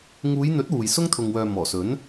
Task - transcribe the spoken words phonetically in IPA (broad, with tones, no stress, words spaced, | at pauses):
ŋuː˨˧jn̪ɵ˨˥t̚ wuː˨j sʊ˥ŋt̪ʰʊ˨ŋwœː˨ mɔː˨˩sɵ˨˥n